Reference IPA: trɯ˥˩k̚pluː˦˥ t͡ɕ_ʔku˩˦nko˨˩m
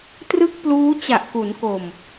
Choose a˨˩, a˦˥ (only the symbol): a˨˩